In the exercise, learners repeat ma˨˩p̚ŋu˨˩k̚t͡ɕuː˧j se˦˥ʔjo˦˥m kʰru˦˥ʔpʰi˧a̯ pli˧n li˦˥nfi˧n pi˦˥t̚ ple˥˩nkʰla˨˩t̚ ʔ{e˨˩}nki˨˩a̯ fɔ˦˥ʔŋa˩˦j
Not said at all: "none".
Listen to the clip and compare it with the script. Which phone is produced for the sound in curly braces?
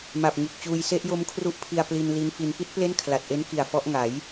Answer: e˦˥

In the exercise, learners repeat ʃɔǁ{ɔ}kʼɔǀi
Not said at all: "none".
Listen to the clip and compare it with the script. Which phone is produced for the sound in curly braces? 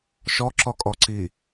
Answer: ɔ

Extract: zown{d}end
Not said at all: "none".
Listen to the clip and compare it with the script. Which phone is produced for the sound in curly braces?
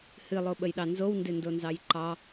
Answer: d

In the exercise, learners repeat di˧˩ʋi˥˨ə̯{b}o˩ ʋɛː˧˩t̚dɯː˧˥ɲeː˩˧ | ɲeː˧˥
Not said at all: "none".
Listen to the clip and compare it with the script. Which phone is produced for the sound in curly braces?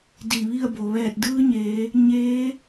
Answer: b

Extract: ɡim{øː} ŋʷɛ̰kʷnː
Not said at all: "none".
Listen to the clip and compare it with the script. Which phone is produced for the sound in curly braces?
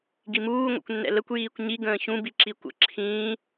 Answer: uː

